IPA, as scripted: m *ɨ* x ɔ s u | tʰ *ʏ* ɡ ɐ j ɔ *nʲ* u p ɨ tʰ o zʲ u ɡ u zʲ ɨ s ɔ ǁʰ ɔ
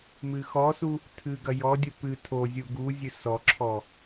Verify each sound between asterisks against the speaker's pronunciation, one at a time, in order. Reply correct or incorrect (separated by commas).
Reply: correct, incorrect, incorrect